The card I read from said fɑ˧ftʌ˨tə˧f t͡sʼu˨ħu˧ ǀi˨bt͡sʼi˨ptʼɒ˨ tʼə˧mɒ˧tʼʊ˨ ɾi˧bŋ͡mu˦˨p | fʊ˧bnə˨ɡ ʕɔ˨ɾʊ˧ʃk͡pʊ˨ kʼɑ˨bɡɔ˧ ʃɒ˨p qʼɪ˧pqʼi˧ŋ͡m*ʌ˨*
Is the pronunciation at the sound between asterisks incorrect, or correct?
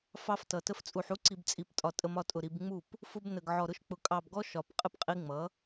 incorrect